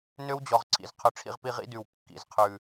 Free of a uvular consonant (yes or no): no